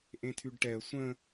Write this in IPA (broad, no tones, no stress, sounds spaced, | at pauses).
ʔ ẽ tʰ y ɖ ʈ ɛ ə̯ sʷ ə̃